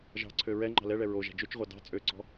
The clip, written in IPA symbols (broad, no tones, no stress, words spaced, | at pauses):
ʒɑ̤ǀʰø ɹɛ ŋ͡ǃɑ̤lɛɭɛ ɹoʒæ̤ d͡ʒøt͡ʃʁʷɑ dɑ̤ t͡sʼøǀɔ̤